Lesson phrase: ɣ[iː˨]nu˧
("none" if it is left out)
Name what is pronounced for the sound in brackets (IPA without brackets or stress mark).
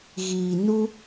iː˨